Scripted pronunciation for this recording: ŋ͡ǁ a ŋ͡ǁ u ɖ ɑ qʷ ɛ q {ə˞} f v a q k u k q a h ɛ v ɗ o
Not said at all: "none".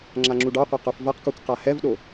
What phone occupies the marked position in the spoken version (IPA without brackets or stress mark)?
ə˞